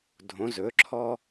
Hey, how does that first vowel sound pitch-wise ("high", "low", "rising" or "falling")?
rising